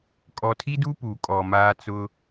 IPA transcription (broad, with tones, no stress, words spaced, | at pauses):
kʼɔ˨tʰi˦du˦ pu˨kʼɔ˨maː˦t͡sʊ˦